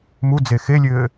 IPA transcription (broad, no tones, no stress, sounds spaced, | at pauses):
m u d͡z e x e lʲ ɘː